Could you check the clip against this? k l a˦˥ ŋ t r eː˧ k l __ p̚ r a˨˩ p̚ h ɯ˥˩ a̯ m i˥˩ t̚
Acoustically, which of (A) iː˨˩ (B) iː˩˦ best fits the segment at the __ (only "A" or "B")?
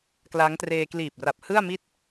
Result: A